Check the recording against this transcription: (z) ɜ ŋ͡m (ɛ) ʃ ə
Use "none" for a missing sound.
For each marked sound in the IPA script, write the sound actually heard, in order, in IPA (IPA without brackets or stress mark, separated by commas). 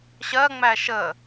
ɕ, æ